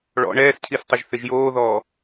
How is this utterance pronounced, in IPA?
ɭ ɔ̰ ɳ ɛː s cʰ i s tˤ ɪ ʒ θ ɪ ʒ j oː ð ɔː

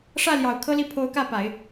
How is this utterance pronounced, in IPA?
ʂ ä˥˩ l j ɑ˨˩ ʊ̯ kʰ ɤ˥ l i˥˩ pʰ o˧˥ ʊ̯ k ä˥˩ p a˨˩˦ ɪ̯

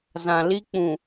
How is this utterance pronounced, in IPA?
z ã˨ l i˦ k͡p ũ˨

